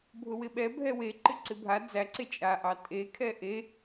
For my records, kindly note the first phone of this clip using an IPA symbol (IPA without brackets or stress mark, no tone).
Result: bʱ